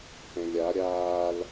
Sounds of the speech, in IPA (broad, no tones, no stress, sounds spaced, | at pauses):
θ ɛ̃ lʲ a ɾʲ aː l